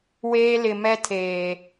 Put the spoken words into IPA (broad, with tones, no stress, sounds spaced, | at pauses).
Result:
w eː˦ l ɪ˨ m ɛ˦ tʰ eː˨